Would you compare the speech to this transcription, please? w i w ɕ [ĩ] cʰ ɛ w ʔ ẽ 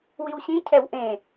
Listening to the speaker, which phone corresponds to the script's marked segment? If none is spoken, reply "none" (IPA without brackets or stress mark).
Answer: ĩ